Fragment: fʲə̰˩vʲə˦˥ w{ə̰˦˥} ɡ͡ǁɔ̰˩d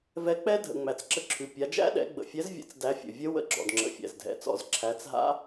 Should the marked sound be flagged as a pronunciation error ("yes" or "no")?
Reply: yes